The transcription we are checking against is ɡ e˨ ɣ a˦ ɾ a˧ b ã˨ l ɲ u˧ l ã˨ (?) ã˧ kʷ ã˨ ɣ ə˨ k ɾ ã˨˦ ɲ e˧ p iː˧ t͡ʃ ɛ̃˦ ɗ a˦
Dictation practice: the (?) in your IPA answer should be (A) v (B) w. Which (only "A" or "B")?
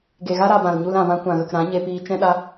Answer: A